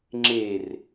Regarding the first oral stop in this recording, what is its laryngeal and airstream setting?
click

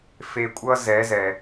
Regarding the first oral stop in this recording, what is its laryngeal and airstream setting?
ejective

